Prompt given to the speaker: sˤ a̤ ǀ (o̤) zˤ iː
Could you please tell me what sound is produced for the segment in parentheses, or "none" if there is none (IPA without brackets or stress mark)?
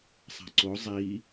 o